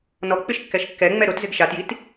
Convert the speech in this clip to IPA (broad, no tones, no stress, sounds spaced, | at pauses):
n ɔ k͡p ɪ ʃ kː ɛ ʃ kː ɛ ŋ͡m ɛ ɾ o t z ɪ ɡ ʃ a t j i t